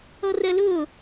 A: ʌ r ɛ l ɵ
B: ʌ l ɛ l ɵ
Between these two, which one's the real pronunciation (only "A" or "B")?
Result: A